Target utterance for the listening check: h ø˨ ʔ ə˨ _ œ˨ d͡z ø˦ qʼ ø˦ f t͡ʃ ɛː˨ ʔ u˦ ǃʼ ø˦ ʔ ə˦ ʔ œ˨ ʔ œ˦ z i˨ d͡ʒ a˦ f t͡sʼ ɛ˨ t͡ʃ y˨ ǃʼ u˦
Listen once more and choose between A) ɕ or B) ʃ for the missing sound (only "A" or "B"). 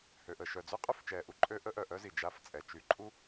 B